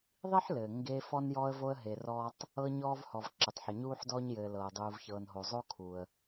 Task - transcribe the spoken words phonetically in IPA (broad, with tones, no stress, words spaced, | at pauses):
ðˤi˥ħlɘː˩ ŋɡe˨ fɔ˦njɔ˦ə̯vo˦ə̯ ɦe˨rɔː˥tˤ | ɤ˦ɲɔː˦vhɔ˩v ǁɘ˩tˤħɘ˩ɲuː˦ħ dɔː˦ɲjɘː˩ lɤː˩dˤuː˨v çɤː˩nɦo˩zˤo˥ kʰuː˨ə̯